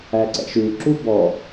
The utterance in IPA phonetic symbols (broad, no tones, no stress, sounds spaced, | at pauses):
æ ǀ ɛ̰ ʃ ʉ ǁ u b ɔ